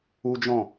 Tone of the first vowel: high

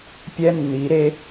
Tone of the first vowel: high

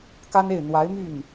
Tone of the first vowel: high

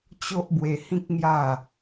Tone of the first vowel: high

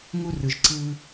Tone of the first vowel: high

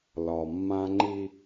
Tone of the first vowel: low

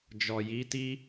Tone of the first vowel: low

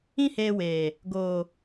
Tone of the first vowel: high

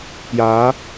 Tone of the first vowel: rising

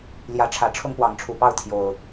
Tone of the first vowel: rising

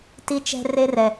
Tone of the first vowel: high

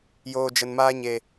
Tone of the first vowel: low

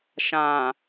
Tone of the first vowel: low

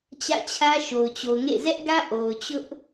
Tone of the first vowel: falling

